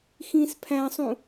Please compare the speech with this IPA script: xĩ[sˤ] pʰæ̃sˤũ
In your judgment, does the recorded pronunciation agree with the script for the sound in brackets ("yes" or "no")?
no